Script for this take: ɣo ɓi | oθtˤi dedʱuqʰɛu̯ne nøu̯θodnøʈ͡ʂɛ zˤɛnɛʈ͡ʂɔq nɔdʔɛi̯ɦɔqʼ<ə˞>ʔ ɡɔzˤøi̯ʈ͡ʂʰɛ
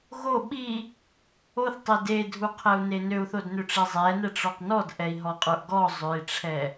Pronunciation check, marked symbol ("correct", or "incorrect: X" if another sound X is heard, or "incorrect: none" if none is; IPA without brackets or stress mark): correct